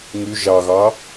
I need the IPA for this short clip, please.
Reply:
ŋ y ʒ ɑ ɣ ɑ

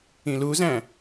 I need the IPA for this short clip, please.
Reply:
ĩ l u z æ̃

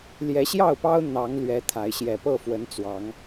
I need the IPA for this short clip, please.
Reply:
l j ɛ˨˦ ɕ j ɑ˥˨ ʊ̯ p ɑ˦ ʊ̯ n̪ ɑ˨˦ ŋ l ɥ ɛ˨˦ t̪ʰ a˨˦ ɪ̯ ɕ j ɛ˨˩ p ɤ˥˨ f w ə˨˦ n t͡s w ɑ˨˦ ŋ

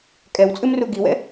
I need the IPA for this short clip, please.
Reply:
kʼ ɛ w t͡sʼ ɨ m r u ɡ i w ɛ̰

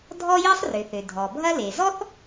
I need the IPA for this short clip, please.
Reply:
dʱ ɔ˥ j i˥ sˤ r ʏ˩ θ ø˩ dʱ ɔ˩ bʱ ɐ˥ l e˩ z ɔ˥ θ

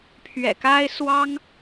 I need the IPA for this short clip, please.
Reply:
pʰ ɥ ɛ̰˨˩ k a˥ ɪ̯ s w ɑ˥ ŋ

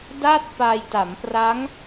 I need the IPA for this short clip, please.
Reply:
d aː˥˩ t̚ p aː˧ j t a˩˦ m p r a˦˥ ŋ

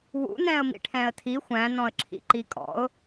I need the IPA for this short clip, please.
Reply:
w ṵ n ɛ̃ ə̯ m ḭ ʈʰ ɛ̃ ə̯ tʰ i xʷ æ̃ n ɔ̃ ə̯ ǁʰ ḭ ǃ i kʼ ɔ̰ ʊ̯

